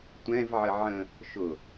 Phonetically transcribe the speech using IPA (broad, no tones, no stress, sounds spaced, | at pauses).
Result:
tʷ ɛ̃ v ʕ ə ʕ ə̃ | ʃ ʊ